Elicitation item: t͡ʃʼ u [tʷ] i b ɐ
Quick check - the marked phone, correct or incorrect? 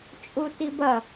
incorrect